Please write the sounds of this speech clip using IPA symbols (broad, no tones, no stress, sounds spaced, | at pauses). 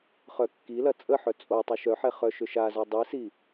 χ œ kː i l ɐ t͡sʼ ə ħ œ t͡sʼ o tˤ u ʃ œ ħ ɛ χ œ ʃ ʏ ʃ a z œ dˤ i s i